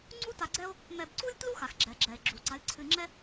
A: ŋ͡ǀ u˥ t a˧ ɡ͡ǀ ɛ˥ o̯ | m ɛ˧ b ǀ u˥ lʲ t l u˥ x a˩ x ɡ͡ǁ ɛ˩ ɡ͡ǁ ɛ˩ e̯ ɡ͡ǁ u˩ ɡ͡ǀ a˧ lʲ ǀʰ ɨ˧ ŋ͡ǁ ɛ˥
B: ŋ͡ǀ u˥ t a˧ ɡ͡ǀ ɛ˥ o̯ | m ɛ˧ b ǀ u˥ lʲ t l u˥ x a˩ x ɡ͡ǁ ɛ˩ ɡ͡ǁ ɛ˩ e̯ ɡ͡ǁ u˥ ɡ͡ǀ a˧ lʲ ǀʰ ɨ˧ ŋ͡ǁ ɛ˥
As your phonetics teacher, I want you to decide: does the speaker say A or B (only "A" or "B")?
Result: A